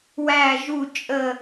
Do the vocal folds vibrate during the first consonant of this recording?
yes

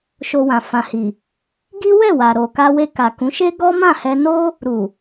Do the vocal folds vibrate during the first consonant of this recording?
no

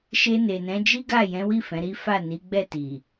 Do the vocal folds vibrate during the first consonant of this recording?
no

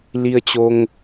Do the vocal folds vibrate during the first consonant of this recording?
yes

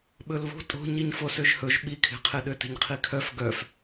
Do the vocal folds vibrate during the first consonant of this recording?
yes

